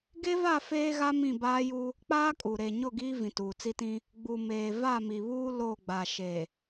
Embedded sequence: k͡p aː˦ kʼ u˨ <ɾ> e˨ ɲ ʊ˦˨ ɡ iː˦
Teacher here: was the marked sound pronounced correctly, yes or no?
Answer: yes